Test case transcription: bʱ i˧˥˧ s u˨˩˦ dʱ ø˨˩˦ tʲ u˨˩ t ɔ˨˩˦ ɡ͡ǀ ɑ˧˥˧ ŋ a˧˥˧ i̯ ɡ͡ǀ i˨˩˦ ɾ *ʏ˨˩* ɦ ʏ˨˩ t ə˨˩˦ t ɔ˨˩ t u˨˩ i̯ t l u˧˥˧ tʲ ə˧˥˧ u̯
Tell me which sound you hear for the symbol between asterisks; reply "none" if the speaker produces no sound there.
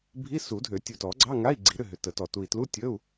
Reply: ʏ˥˨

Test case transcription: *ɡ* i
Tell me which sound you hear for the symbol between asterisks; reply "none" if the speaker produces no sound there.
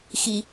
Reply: x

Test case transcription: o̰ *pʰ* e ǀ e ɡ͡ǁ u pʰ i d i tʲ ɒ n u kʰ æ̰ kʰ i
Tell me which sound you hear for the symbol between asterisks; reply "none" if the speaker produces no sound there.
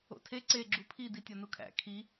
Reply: tʰ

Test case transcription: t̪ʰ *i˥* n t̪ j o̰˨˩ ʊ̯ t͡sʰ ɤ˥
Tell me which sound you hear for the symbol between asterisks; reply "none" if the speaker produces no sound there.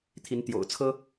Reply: i˧˥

